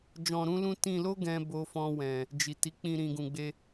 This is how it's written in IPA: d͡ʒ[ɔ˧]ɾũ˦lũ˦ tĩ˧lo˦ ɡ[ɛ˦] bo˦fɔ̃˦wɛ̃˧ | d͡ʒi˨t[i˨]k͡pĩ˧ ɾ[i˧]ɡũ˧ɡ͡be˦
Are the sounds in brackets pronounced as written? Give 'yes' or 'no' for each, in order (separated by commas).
no, no, no, no